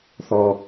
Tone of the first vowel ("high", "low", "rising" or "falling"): low